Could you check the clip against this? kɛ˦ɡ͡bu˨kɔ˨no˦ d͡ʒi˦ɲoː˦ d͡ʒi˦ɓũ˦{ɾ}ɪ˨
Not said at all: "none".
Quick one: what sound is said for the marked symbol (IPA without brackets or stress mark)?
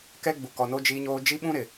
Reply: ɾ